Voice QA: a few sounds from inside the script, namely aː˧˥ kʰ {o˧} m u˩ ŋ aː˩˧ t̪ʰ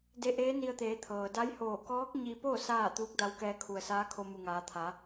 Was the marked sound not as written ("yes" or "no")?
no